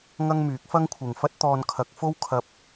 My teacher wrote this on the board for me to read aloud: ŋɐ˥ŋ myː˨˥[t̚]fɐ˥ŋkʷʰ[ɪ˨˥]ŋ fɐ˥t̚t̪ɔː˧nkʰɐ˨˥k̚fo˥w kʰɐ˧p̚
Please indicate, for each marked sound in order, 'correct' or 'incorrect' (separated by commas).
incorrect, incorrect